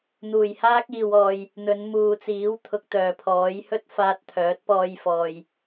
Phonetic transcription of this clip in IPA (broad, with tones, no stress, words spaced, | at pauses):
n̪uː˨˩jhaː˥k̚iː˨wɔː˨j | n̪ɵ˨˧nmuː˨t͡siː˨˥w t̪ʰʊ˨k̚t̪œː˨˩pʰɔː˨˥j hɵ˥t̚faː˧t̚t̪ʰœː˨˥t̚pɔː˧j fɔː˨j